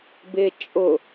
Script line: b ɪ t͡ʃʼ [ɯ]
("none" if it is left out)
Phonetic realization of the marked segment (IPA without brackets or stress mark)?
ʊ